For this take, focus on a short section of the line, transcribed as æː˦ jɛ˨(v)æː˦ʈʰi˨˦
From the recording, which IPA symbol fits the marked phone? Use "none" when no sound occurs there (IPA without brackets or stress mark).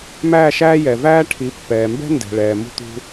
v